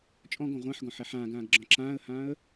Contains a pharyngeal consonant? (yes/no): yes